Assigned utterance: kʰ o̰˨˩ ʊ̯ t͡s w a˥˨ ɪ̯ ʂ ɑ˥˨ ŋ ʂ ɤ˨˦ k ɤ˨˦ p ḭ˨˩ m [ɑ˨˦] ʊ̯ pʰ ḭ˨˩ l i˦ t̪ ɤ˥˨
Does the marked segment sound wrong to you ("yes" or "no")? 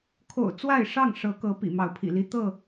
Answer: no